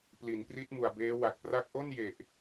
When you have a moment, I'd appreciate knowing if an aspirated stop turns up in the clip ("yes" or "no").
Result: no